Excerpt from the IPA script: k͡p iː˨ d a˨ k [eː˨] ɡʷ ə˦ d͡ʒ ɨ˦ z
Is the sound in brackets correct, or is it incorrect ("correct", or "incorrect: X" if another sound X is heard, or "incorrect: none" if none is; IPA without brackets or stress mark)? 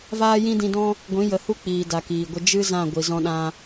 incorrect: iː˨